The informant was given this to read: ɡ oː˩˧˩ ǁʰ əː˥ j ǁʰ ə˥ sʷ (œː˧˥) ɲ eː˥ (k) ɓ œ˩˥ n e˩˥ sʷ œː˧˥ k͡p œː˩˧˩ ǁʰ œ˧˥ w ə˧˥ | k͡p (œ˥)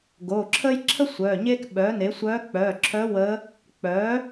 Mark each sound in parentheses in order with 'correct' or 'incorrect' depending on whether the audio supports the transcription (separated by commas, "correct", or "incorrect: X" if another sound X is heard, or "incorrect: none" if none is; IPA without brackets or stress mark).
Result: incorrect: œː˩˧˩, correct, incorrect: œ˩˥